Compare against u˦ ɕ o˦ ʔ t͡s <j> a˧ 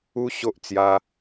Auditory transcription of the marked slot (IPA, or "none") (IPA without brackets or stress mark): j